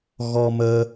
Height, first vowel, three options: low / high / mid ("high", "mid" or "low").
mid